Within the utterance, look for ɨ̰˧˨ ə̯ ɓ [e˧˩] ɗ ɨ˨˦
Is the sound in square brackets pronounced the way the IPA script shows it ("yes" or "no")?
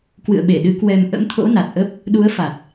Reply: yes